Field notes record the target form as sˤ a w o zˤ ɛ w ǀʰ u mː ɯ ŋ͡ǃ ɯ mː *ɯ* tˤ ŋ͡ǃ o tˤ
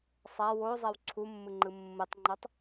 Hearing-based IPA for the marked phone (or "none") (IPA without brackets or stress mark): ɯ